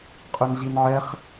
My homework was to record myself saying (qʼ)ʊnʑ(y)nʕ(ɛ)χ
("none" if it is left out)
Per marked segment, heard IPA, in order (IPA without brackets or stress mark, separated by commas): qʼ, i, ɛ